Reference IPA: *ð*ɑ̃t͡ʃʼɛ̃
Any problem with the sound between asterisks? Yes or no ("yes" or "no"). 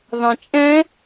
no